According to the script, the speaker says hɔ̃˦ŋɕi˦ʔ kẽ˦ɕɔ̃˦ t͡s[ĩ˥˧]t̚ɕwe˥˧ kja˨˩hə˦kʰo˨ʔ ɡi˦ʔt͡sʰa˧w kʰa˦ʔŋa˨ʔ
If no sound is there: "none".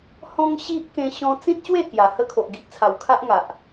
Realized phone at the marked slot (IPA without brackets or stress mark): ĩ˦